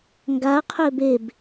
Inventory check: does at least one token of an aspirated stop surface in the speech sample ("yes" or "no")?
yes